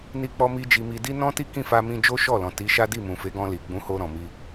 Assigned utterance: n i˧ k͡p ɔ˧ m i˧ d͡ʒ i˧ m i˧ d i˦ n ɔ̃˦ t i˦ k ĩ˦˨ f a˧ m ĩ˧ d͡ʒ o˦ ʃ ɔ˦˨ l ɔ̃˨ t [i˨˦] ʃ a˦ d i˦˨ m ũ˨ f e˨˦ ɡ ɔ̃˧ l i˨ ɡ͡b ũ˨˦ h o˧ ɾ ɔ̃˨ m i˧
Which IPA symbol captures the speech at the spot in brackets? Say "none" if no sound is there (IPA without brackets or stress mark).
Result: i˨˦